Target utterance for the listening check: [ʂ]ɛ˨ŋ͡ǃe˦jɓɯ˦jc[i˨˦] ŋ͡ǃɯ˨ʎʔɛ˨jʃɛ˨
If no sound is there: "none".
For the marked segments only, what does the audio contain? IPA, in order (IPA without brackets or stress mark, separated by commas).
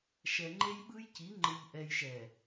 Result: ʃ, i˨˦